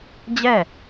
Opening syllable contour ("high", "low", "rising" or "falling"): falling